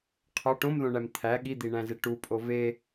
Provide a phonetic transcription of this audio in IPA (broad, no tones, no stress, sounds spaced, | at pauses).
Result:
qʰ ɒ ʈ õ m ð õ ɳ æ m t̪ʰ æ ɠ i d̪ i ɳ æ̃ z e ʈ u pʼ o v e